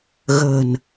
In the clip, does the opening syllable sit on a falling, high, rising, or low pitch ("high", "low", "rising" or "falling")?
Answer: low